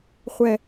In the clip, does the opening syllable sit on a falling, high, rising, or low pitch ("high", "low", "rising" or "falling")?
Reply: high